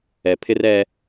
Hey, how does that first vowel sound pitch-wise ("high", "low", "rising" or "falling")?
low